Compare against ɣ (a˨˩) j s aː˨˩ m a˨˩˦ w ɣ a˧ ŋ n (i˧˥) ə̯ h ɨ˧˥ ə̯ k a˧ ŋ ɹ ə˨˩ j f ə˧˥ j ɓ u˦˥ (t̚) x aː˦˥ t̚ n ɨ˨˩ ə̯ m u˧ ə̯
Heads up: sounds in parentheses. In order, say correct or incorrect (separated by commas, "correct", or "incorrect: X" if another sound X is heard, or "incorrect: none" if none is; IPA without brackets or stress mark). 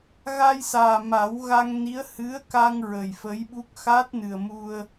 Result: incorrect: a˧, correct, incorrect: k̚